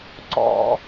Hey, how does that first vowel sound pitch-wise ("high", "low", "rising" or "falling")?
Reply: high